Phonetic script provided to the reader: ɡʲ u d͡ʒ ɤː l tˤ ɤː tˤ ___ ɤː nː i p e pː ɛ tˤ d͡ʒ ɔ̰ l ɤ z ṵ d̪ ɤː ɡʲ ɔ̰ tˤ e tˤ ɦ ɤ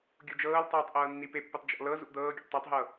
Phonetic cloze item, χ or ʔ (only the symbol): ʔ